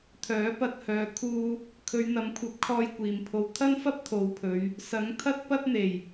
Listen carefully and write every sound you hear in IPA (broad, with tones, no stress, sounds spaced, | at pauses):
t̪ʰ œː˨˥ p ɐ˧ t̚ h œː˨˧ kʰ uː˥ | kʰ ɵ˨˧ ɥ n̪ ɐ˨˥ m kʷʰ ɐ˨˥ p̚ kʰ ɔː˧ j kʷ iː˨ m pʰ o˧ w t̪ʰ ɐ˥ n f ɐ˥ p̚ t̪ʰ o˨˧ w pʰ ɵ˨˧ ɥ | s ɐ˨˥ ŋ t̪ʰ ɐ˥ t̚ p ɐ˥ t̚ n̪ e˨˩ j